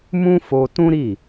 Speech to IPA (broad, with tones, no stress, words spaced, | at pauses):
mũ˦fo˧tũ˦ɾi˦˨